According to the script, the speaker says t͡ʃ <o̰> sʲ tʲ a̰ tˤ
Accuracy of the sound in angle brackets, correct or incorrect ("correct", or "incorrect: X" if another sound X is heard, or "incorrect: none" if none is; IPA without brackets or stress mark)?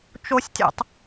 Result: incorrect: o